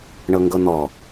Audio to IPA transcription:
ɳ ɤ ŋ ɡ ɤ n̪ ɔ

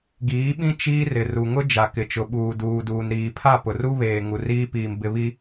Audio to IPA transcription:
ɡ iː˨˦ ɓ ĩ˦ t͡ʃ iː˦ r ɪ˨ r u˨ ŋ ʊ˦ d͡ʒ a˨ k ɪ˨ t͡ʃ ʊ˨ ɓ uː˨ d uː˨ d uː˨ n ɾ iː˨ pʰ a˦˨ p ʊ˨ r u˦ β eː˨ ŋ u˨ r iː˦ p iː˨ m b ɪ˦ β i˦

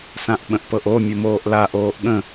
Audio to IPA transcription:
s ã ʔ ɓ ə̃ ʔ p ɤ ʔ o mʲ ʊ m oː ʔ l a ʔ oː ʔ ɠ ə̃

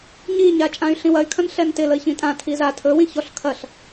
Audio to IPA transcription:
ɲ i ɲ a t͡ʃʼ ã y̯ ɬ ĩ w ɐ y̯ kʰ ɐ̃ n ɬ ɛ n t ɪ l ə i̯ ç ĩ tʼ ã tʰ i z a tʰ ɵ w ĩ ç ɔ ɬ kʰ ɐ ɬ

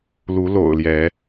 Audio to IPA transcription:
l u˨˦ l o̰˨˩ ʊ̯ l j ɛ˨˦

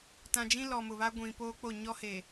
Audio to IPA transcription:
t ã˨ d͡ʒ ĩ˦ l ɔ˨ m ʊ˨ β a˦ ɡʷ ĩ˨ p oː˦ k͡p o˦˨ ɲ ɔ˦ h e˨

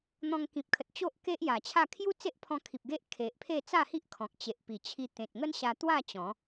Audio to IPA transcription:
n̪ ɔ̃˧ ŋ k ĩ˨ p̚ kʰ ə˨ t̚ t͡ɕ o˦ ʔ k e˦ ʔ j a˨˩ t͡ɕʰ a˥˧ kʰ j u˦ t͡s e˦ ʔ pʰ ɔ̃˧ kʰ i˨ p̚ ɡ e˦ ʔ kʰ e˨ ʔ pʰ e˥˧ t͡s a˥˧ h i˦ ʔ kʰ ɔ̃˨ k̚ t͡ɕ e˨ ʔ p i˨˩ t͡ɕʰ i˧ t̪ ẽ˨ t̚ ŋ ə˦ n ɕ a˧ t̪ w a˥˧ t͡ɕ ɔ̃˨˦

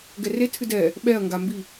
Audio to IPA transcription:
ɡ ɛ r e tʰ ɨ d ɛ | ɓ ɛ ɐ̯ ŋ ɡ a m b i

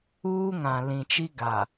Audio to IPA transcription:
uː˦ ŋ ã˨ l ĩ˨ t͡ʃ i˦ ɡ a˨

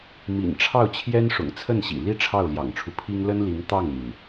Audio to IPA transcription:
m ḭ˨˩ n ʈ͡ʂʰ ɑ˥˩ ʊ̯ t͡ɕʰ j ɛ˥ n ʂ ʊ̰˨˩ ŋ t͡sʰ ə˥˩ n ɕ ḭ˨˩ l i˥ ʈ͡ʂʰ ɑ˥˩ ʊ̯ l j ɑ̰˨˩ ŋ ʈ͡ʂʰ u˦ pʰ i˥ ŋ l ə˥ n l i˧˥ ŋ t̪ ɑ˥˩ ŋ n̪ i˩ n

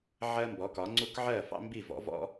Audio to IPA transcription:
ʕ ɜ˥ m b ɔ˩˥ k ɒ˩˥ ŋ͡ǀ u˥ k ʕ ɜ˥˩ f ɑ̰˥ m b i˥˩ v ɔ̰˩˥ v ɔ̰˥

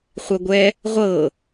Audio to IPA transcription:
χʷ ɛ ɡʷ ɛ | ʁʷ ɤ

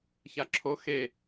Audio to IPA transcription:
ç a ǁʰ o x e

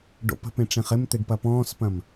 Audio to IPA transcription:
ɖ o̰ p ə̤ p ẽ ʈ͡ʂ ẽ χ ɪ m t̪ e ɖ p ɐ p ɔ̃ː s p ɐ̃ m

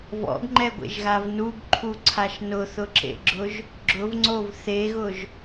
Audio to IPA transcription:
v ɔ̰ ɡ ŋ͡ǃ ɛ ɡʷ ḛ ʒ ɣ a v n u ɡ ǃʰ u ǀʰ a ʃ n ʊ θ ʊ ǁ ḛ ɡ͡ǁ ʊ ʒ | ɡ͡ǁ ʊ v ŋ͡ǀ o v θ e ɣ ʊ ʒ

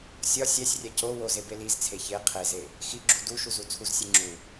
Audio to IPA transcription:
sʲ ɒ sʲ æ sʲ rʲ æ c o w o z e b e l i z t͡sʰ e ç e qʰ e z e | x i ɡ͡ǁ u d u ʃ u z u t͡sʰ u z sʲ e ŋ͡ǁ u

